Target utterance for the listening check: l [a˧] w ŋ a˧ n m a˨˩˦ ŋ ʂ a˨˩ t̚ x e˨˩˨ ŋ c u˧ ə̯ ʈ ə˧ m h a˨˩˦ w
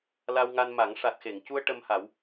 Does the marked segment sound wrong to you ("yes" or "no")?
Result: no